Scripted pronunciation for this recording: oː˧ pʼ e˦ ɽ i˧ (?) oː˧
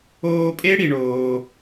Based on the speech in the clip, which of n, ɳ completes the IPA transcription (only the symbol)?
ɳ